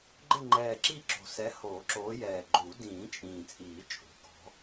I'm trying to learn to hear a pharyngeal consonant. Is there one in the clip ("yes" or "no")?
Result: no